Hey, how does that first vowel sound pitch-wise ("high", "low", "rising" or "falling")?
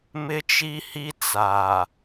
high